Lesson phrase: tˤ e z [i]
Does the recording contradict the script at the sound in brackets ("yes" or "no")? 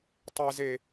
yes